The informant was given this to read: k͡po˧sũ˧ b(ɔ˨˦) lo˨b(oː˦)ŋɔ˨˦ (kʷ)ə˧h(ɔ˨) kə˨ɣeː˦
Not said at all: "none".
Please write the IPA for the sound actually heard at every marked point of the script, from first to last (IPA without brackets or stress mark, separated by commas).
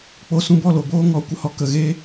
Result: ɔ˦˨, oː˦, kʷ, ɔ˧